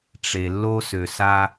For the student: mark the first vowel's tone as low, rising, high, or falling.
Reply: low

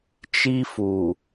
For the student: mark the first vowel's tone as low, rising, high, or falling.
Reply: high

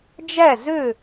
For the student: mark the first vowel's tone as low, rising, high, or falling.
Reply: falling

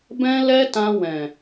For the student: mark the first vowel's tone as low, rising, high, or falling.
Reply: high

